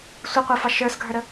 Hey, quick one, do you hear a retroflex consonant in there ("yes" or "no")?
no